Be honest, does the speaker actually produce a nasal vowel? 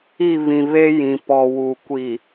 yes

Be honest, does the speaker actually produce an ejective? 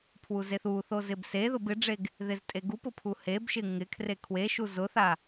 yes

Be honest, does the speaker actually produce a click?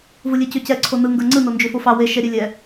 yes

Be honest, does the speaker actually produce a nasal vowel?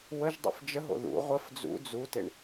no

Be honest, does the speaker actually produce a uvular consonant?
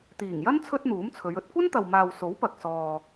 no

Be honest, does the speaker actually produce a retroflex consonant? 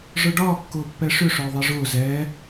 yes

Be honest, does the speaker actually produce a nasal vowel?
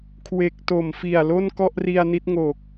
no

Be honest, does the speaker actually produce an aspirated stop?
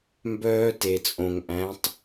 no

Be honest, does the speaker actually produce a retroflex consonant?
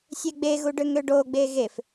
yes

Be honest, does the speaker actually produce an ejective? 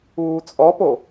yes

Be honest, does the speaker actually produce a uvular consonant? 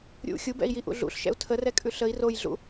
no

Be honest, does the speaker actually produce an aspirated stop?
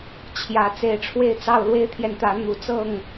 yes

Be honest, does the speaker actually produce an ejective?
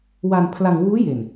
no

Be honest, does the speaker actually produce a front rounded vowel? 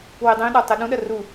no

